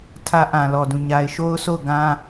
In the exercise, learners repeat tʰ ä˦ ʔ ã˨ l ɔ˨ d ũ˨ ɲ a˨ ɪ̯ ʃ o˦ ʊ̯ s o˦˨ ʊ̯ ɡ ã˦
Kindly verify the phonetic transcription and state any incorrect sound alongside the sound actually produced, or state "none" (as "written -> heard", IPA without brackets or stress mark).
none